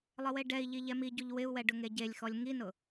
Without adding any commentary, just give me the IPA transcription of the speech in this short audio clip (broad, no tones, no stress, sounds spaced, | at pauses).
lˠ ɪ w e ɖ ɛ i̯ ʎ i ʎ ɛ m i ɟ u ʎ w ɪ u̯ w ɛ ɖ ʊ ŋ e ɟ e lʲ x ɔ lʲ ŋ i n ʊ